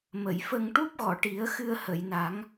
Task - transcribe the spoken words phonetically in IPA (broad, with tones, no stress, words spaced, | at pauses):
mə˨˩˨jfə˧ŋ ʈu˦˥p̚ɣɔ˨˩˨ʈi˨˩˦ə̯ xɨ˧ə̯hə˨˩˨jna˨˩˦ŋ